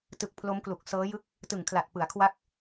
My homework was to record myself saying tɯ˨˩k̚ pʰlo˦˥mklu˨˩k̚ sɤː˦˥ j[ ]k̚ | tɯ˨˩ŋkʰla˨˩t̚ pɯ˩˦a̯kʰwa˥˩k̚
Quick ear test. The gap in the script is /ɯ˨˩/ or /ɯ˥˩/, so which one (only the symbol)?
ɯ˥˩